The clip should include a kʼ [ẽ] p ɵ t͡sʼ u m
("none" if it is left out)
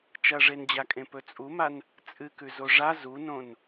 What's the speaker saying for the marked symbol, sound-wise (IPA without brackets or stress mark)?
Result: ẽ